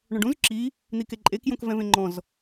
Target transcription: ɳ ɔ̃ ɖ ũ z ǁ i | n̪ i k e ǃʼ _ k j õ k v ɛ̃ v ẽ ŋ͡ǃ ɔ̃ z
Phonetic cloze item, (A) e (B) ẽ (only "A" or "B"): A